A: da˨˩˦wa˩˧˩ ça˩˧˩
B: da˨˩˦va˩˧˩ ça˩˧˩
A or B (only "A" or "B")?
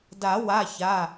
A